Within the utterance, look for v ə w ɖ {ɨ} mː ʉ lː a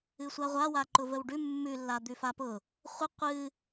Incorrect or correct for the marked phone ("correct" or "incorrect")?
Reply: incorrect